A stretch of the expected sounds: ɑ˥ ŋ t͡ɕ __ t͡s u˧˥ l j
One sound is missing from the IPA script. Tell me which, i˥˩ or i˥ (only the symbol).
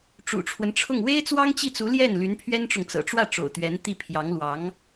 i˥˩